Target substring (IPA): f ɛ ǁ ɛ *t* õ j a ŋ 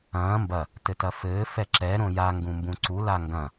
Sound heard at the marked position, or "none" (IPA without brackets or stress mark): ɾ